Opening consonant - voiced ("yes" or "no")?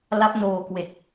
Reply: yes